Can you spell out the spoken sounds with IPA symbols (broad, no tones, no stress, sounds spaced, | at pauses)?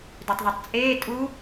d ø tˤ ð i tˤ t͡sʼ eː tʼ u